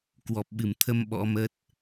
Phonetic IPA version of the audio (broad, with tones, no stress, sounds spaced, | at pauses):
k w ɔ˨˩ p̚ ɓ ɨ˧˩ m t̪ʰ ə˧ m ɓ ɔ̰˧˥ m ə˦˥ t̚